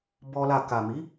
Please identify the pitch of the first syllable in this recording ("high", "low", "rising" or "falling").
high